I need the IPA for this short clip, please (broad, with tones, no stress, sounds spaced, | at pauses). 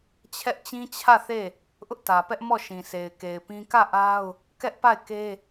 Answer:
t͡ɕʰ ɛ˦ ʔ t͡ɕ ĩ˦ t͡ɕʰ ä˦˨ θ e˦˨ | ʔ ʊ˦ ʔ t ä˨ p ɛ˦ ʔ m ɔ˦˨ ʃ ĩ˨ sʰ e˨ ɪ̯ k e˨ ɪ̯ p ĩ˦ k ä˦˨ ʔ a˦ ʊ̯ | k ɛ˦ ʔ p a˦˨ ɪ̯ k e˦